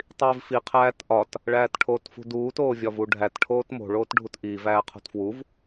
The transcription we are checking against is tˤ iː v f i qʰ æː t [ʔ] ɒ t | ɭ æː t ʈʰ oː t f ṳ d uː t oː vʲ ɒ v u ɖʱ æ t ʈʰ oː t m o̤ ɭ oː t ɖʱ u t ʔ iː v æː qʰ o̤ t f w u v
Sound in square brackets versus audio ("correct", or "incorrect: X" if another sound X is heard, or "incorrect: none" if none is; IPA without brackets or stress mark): correct